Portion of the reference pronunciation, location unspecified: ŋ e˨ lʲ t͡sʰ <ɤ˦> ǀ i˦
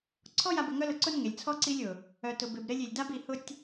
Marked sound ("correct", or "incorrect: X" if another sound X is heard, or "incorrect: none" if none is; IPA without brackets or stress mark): incorrect: ɔ˦